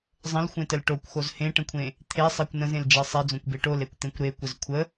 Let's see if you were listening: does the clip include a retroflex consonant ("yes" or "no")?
yes